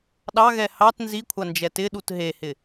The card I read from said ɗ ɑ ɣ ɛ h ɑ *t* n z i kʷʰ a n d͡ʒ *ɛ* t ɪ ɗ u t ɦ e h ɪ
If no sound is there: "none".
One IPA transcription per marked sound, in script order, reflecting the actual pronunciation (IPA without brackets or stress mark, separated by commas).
t, ɛ